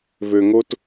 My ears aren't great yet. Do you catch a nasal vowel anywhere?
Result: no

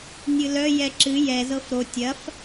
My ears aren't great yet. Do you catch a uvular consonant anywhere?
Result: no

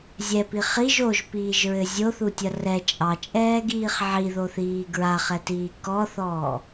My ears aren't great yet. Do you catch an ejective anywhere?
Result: yes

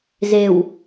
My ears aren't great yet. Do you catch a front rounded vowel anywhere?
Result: no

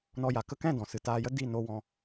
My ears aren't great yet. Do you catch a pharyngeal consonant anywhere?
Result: no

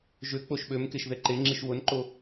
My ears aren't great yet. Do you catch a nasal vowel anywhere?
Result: no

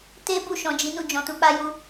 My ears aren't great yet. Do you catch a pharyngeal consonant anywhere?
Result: no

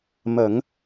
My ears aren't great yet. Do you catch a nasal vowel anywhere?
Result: no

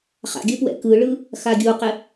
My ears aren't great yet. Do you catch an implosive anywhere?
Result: no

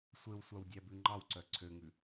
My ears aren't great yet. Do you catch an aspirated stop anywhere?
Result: yes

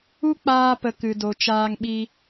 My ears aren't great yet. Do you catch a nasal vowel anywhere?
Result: no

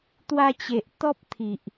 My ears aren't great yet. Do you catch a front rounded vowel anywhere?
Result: no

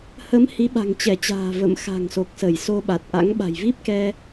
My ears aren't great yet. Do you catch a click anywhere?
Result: no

